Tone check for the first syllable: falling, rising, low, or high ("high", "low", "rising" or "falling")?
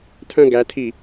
falling